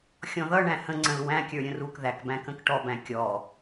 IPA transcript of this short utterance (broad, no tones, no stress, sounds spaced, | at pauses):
xʲ ɔ̃ ð ʌ ɳ æ̃ h ə̃ ŋ͡ǀ ə̃ l w æ̃ kʲ ə˞ ɾʲ ə̃ r u k ð æ k b æ̃ k ə̃ k ʈ ɔ b æ̃ kʲ ɔ